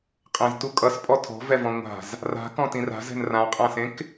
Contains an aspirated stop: yes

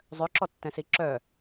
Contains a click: yes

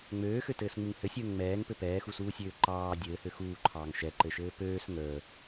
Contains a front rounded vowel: yes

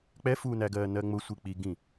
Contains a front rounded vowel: no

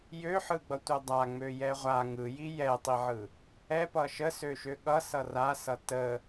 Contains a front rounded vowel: yes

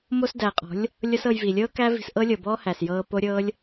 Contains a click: no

